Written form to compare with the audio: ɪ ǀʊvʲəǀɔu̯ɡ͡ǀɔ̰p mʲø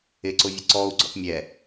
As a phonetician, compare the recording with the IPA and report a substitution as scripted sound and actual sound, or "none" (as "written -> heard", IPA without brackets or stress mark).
ø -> ɛ